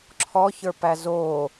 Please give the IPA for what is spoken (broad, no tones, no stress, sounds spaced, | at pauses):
ǁʰ ɔ ç ə˞ p æ z o